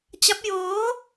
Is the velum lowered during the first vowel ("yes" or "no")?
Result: no